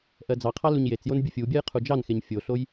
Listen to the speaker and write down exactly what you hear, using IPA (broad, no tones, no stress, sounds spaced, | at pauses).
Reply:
ʔ ɜ d͡z ɑ qʰ ɑ l u ɲ j e t͡s j o n bʲ u fʲ u bʲ ɜ j qʰ u d͡ʒ ɑ n x e ɲ fʲ o ɬ o j